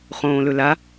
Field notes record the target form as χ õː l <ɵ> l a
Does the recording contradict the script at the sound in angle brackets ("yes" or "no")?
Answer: no